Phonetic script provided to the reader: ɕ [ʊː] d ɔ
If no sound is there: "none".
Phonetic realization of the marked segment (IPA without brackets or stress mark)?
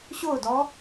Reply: ʊː